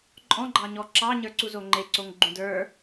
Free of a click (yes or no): no